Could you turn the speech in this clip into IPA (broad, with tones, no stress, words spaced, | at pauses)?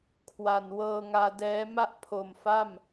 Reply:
kʰwa˨˩n wɤː˧ŋaː˧dɛː˦˥ ma˥˩ʔpʰo˨˩m fa˥˩m